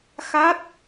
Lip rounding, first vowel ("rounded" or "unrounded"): unrounded